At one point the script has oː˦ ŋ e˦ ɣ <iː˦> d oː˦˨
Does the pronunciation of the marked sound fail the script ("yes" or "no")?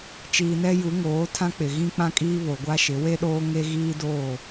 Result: no